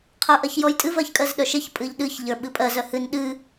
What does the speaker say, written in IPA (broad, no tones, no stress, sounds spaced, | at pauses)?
qʰ ə˞ ʔ ɜ ç j ɔ j tʼ ɨ v ɜ ç kʼ ɜ z ɗ œ ʃ e ç pʼ ɨ ʎ ɗ ɨ ç ʎ ə˞ ɓ ɨ pʼ ɜ z œ h ɨ n ɗ ɨ